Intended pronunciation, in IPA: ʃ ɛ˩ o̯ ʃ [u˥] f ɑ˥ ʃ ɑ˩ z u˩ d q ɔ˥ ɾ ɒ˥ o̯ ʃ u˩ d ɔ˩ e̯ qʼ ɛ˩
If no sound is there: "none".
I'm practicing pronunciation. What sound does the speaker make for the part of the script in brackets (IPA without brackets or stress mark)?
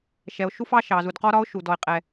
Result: u˥